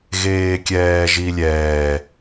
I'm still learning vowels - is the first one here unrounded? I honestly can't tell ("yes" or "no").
yes